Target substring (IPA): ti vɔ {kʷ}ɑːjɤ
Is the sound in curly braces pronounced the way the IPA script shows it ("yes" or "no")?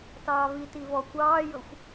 yes